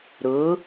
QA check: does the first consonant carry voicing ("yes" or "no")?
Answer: yes